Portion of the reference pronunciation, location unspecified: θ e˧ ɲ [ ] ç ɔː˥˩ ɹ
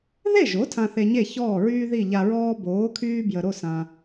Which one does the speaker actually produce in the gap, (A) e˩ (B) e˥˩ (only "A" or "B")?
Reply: B